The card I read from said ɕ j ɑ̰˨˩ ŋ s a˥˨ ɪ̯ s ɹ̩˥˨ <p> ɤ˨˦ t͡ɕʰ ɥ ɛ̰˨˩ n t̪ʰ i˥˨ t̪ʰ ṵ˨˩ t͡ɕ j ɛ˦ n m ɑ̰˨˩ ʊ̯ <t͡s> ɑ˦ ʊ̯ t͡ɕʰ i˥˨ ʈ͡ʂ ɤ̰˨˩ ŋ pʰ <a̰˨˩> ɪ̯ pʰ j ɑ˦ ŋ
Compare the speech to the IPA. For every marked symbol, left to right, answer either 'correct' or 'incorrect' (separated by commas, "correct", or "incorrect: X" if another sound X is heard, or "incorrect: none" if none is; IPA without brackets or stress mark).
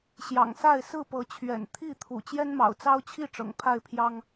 correct, correct, incorrect: a˥˨